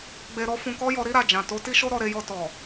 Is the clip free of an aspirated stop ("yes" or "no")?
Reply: yes